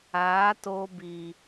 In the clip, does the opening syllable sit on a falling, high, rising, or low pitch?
rising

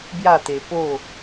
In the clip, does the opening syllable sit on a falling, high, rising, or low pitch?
falling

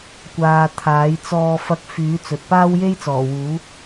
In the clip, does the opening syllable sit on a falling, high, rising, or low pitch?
low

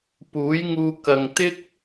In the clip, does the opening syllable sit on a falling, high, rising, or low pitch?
rising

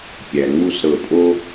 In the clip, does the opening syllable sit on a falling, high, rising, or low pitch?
low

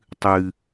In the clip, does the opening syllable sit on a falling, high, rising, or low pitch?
high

